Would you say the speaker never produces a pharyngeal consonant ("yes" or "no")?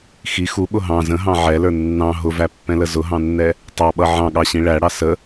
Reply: no